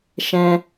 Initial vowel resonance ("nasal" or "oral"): nasal